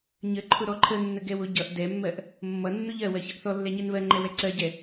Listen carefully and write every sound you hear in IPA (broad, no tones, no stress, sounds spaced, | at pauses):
ɲ ə ǃʰ ʊ ɾ ɔ ǃʰ ə nː ə ɡ ɛ w ʊ ɟ ʌ ʔ d ɛ mː ɜ ʔ | mː ʌ nː ʊ ʎ ɜ w ɜ ç ʌ ʔ θ ɔ lː ɛ ɲ ɛ n β ɜ ŋ͡ǃ ɛ w ɛ ǀ ɜ ɟ ɛ